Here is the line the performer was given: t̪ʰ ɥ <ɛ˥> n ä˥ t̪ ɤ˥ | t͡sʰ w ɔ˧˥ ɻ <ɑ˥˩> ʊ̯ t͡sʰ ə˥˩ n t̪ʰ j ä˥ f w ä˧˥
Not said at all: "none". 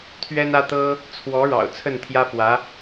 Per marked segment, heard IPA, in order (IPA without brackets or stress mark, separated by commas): ɛ˥, ɑ̰˨˩